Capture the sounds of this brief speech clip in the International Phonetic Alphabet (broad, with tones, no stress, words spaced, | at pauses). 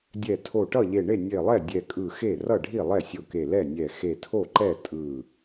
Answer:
dʲɛ˧˩ tʰo˧˩ʈʌ˥˩ʎe˧˩ ɳe˥˩nʲe˧˩lˠɛ˥˩ dʲɛ˧˩kʼɯ˧˩xe˥˩ rʌ˥˩ɖʱi˥˩lˠɛ˥˩ sʲo˧˩ke˧˩ lɛ˥˩nʲɛ˧˩ xe˧˩tʰo˥˩ǃɛ˥˩ tʼɯ˧˩